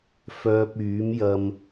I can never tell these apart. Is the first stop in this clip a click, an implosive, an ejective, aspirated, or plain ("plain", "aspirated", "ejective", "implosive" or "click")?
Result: plain